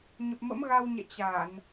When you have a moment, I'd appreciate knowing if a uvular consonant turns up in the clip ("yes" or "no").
no